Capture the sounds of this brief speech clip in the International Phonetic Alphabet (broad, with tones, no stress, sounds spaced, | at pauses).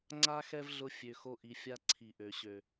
ŋ͡ǀ a˦ x ɛ˦ v ɮ ʊ˧ fʲ ø˨ x o˧ ʔ i˨ fʲ a˧ ǀʰ i˨ ʔ ø˨ ɕ ø˨